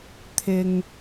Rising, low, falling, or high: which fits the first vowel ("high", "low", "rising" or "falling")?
low